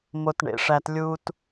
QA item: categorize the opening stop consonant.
plain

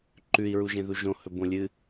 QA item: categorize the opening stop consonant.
click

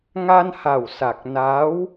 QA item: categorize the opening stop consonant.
plain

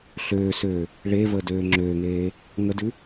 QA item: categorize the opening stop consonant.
plain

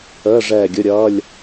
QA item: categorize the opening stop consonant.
plain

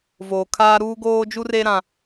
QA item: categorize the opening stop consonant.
aspirated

